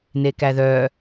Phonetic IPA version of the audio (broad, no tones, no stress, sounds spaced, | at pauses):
n e k æ ð œ